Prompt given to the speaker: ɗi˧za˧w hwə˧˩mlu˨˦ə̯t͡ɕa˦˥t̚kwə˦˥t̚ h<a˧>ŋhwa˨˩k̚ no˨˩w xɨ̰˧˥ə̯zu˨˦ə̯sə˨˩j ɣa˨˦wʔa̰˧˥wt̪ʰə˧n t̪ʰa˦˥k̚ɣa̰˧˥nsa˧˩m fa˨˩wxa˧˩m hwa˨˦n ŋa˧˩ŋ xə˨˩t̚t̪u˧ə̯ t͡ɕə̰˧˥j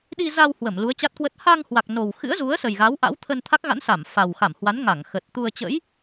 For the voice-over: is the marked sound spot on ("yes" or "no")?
yes